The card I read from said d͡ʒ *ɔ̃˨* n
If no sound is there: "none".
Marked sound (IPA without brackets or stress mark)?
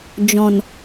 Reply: ɔ̃˨